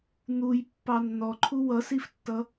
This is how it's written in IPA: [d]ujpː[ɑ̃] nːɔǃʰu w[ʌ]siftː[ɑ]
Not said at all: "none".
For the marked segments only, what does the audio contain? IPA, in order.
n̪, ɑ, ʌ, ʌ

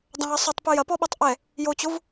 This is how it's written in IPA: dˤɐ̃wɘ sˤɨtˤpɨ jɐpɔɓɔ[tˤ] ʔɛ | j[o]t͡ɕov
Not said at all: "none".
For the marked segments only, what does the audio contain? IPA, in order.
tˤ, o

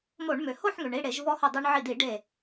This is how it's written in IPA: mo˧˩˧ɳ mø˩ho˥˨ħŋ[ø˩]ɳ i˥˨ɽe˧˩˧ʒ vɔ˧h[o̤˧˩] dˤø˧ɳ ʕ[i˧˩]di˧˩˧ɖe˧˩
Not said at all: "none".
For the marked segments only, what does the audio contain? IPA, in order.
ø˩, o˧˩, i˧˩

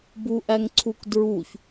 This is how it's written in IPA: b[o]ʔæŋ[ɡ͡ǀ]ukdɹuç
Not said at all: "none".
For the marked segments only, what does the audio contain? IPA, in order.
u, ǀʰ

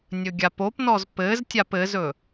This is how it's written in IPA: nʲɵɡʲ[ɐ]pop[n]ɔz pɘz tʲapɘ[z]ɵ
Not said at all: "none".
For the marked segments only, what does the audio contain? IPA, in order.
a, n, z

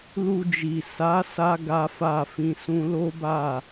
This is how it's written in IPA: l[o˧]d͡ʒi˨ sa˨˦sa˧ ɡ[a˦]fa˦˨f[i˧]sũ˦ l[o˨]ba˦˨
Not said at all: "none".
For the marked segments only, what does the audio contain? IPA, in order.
u˧, a˦, ĩ˧, o˦

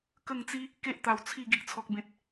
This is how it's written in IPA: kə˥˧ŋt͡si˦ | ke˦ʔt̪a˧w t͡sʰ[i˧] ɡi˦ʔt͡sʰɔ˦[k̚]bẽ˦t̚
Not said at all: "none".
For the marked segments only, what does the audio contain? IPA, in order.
i˥˧, k̚

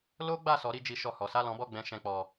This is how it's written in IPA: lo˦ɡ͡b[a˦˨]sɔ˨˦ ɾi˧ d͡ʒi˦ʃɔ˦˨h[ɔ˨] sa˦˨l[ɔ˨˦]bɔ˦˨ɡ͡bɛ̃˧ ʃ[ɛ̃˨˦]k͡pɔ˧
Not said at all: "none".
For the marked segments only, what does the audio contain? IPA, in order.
a˦˨, ɔ˨˦, ɔ̃˨˦, ɛ̃˧

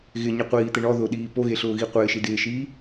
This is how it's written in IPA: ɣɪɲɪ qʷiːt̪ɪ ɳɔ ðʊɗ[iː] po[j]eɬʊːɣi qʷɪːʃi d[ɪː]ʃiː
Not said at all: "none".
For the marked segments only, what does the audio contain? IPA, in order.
iː, ɣ, ɪː

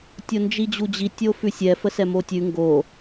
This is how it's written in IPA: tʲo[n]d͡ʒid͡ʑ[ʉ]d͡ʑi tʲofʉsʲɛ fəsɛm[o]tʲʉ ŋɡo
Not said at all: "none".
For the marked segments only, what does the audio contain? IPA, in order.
n, u, o

